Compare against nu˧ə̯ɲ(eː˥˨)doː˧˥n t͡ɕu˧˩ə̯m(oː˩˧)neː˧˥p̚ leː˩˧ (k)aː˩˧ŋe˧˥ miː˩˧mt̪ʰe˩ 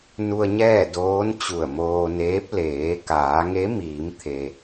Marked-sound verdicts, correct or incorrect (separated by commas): incorrect, incorrect, correct